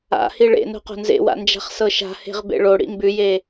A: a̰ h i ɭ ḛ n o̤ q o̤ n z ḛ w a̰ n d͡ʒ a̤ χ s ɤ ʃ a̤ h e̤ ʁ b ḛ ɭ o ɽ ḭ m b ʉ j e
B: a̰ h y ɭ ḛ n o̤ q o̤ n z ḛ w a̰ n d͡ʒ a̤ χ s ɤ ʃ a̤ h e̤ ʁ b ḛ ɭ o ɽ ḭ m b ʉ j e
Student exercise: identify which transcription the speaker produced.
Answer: A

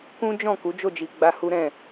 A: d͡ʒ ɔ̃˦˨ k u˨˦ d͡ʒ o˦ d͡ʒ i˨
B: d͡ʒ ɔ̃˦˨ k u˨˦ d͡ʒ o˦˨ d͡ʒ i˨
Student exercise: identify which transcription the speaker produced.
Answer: B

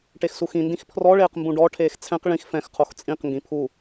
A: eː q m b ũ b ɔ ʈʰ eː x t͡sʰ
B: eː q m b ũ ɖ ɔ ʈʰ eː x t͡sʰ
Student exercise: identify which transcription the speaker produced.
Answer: B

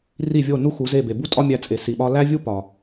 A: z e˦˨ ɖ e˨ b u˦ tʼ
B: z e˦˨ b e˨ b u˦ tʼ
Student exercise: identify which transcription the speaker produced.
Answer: B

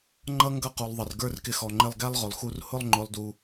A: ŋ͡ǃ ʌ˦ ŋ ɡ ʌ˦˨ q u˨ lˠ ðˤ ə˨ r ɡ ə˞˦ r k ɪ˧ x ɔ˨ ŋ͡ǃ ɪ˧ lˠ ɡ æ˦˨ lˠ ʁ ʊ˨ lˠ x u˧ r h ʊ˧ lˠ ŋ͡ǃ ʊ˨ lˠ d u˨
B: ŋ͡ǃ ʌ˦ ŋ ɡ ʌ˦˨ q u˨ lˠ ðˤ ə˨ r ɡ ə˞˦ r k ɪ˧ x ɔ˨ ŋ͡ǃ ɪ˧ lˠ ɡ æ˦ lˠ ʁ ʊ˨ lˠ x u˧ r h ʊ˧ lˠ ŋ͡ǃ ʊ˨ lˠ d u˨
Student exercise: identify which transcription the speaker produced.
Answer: B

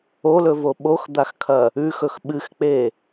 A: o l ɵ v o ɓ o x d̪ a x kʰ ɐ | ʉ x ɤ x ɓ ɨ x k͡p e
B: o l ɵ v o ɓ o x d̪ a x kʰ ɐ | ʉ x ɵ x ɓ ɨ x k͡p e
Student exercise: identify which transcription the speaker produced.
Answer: B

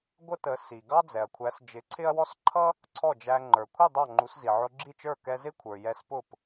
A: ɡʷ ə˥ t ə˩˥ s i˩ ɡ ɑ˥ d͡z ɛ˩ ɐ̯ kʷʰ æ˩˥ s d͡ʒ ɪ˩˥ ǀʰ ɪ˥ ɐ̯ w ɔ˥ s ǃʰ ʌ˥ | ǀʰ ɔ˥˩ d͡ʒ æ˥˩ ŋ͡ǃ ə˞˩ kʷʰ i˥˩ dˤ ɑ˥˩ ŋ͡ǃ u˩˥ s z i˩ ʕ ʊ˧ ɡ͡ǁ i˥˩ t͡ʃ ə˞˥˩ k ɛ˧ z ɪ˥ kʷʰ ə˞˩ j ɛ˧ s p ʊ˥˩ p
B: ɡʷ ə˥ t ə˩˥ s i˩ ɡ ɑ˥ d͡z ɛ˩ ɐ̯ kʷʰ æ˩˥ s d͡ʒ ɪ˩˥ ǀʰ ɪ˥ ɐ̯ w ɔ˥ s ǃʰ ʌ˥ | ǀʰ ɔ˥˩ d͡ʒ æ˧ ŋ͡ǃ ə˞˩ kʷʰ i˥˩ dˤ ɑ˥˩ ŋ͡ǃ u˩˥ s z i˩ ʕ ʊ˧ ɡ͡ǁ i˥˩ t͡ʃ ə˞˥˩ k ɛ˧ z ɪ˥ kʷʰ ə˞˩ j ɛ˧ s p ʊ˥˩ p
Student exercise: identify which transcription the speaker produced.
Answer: B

